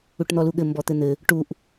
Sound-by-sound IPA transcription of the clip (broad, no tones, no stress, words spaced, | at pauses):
uʈn̪ɔluɠɘ mbɔt̪ɘn̪ɘ | ʈuʔ